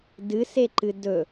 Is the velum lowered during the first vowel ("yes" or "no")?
no